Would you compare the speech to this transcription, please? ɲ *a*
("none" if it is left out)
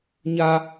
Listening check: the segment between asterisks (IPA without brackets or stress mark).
a